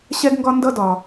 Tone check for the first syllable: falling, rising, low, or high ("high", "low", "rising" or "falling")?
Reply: high